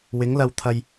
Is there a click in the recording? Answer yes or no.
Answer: no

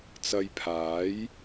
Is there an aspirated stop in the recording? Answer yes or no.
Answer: yes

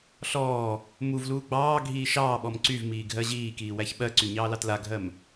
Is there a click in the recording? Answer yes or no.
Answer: yes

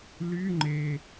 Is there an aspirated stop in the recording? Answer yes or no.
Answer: no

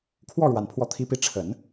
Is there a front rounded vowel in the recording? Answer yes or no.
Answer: no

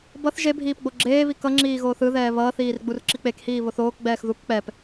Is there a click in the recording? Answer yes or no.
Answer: yes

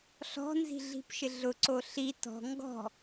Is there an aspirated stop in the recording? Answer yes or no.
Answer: no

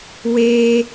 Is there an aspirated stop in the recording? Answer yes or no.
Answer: no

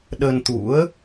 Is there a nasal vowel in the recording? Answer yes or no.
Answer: no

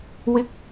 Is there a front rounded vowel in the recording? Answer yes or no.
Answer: no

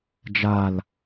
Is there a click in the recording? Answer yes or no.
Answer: no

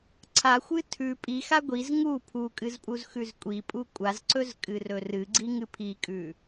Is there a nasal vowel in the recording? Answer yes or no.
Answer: no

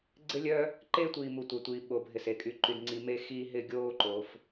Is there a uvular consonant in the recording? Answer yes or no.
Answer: no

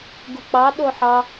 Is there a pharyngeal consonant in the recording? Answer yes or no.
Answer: yes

